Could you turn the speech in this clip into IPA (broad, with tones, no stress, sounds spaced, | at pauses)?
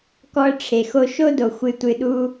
k ɔ˧ ə̯ ʈ͡ʂʰ e˨ x o˧ ʃ o˦ d o˨ xʷ ɨ˧ tʷ ɨ˧ ɗ u˦